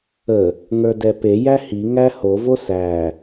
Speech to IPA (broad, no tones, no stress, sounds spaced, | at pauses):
ə | ŋ ə˞ d ɛ p e j æ h i ŋ æ h o v o s æ